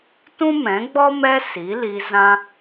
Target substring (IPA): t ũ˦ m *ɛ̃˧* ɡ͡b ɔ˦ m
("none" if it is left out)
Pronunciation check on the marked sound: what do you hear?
ɛ̃˨˦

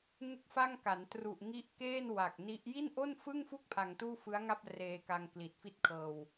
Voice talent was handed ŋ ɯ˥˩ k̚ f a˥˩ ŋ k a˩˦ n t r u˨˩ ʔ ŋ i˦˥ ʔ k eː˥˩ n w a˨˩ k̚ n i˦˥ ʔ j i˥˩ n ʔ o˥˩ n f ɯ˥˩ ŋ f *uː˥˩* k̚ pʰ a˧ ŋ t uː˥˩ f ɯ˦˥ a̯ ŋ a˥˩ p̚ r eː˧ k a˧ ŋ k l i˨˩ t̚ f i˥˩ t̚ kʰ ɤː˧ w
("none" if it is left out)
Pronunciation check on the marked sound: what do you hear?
u˥˩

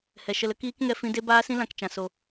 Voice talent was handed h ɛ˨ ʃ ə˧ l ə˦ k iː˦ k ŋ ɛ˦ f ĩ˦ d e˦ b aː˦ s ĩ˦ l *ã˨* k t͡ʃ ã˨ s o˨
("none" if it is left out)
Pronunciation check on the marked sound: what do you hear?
ã˨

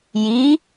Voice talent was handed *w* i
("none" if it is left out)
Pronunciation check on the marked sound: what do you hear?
j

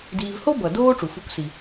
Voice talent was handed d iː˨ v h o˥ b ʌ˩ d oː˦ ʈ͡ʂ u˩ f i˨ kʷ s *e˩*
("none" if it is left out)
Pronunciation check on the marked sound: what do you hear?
i˩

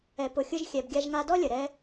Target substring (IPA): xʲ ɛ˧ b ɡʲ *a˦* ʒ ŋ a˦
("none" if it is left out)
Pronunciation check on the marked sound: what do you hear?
a˦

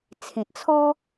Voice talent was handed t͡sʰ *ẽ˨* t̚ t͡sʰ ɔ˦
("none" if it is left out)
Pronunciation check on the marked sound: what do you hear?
ẽ˨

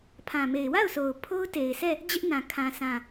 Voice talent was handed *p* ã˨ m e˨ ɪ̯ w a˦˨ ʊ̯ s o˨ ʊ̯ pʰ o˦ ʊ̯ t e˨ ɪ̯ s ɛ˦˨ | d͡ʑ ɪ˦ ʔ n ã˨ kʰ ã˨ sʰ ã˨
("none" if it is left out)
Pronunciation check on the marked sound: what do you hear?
pʰ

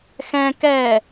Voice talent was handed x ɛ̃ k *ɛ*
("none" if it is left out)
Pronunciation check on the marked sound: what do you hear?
ɛ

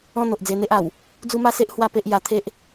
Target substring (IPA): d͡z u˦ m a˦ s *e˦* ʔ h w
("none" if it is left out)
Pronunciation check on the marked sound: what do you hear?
e˦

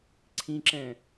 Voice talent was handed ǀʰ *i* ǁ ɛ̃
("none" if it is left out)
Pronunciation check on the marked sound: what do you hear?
ĩ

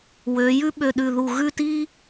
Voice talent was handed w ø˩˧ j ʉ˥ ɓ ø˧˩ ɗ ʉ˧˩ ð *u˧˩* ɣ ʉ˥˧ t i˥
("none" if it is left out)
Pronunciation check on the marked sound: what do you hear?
u˧˩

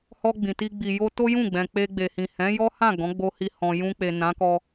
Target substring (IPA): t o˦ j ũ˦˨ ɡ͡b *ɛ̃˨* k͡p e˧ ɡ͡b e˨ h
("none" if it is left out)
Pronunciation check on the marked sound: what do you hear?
ɛ̃˨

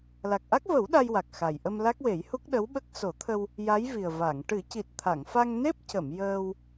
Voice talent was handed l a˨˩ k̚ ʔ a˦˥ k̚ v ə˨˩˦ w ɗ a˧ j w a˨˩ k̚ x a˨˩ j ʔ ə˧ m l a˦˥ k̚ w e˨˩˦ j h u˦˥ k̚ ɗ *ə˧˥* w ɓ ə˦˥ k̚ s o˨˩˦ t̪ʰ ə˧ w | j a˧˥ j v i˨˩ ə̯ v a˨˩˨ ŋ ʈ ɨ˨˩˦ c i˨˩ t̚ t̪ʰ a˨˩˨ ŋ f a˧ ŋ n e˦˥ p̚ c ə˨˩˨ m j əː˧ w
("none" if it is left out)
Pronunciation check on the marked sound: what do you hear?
ə˧˥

